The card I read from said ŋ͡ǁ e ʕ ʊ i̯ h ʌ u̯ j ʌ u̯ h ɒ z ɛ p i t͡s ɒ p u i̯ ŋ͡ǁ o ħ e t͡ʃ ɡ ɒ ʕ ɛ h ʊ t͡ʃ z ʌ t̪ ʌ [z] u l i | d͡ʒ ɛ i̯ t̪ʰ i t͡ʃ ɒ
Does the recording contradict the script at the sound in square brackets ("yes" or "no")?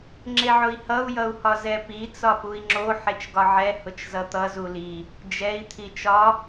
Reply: no